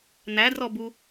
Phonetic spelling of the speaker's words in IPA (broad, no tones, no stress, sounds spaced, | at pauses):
n̪ æ d r ɔ b u